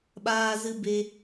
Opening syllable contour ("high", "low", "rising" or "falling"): high